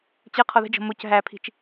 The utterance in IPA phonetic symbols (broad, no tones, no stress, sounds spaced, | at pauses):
t͡ɕ ə qʰ ɔ ð ə̤ d͡ʒ ɔ̤ m o c ɦ æ pʰ i̤ t͡ʃ